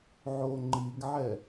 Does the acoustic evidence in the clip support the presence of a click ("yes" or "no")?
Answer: yes